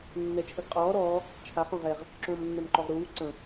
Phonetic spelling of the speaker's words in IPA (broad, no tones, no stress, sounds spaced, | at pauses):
nː ɛ t͡ʃʰ ə ɡ qʼ ɔː ɾ ɔː | t͡ʃʰ a χ õ ʁ ɛ ʁ | ǁ õː m nː ɛ m ǃ ɔ ʁ ɾ uː ǀ ə̃